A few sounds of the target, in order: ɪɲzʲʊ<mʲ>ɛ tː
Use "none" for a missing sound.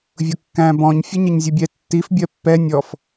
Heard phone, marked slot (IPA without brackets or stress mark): bʲ